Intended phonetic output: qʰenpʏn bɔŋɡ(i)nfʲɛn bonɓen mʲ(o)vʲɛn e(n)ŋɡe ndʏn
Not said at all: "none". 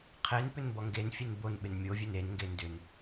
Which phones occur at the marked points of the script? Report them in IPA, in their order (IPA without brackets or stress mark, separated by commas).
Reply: e, o, n